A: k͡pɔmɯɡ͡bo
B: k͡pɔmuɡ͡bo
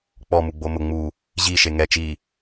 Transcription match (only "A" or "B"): B